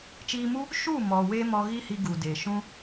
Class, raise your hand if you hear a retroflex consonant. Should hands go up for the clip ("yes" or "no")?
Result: no